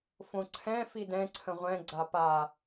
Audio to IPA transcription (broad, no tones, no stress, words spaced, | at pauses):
fõǀʰɛ̃ fidɛ̃ ǀʰə̃ʁʷɛ̃ ɡ͡ǀapa